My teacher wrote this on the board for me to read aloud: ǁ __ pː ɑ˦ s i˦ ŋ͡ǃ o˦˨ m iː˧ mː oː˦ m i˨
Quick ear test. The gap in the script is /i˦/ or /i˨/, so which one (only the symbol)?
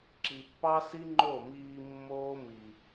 i˨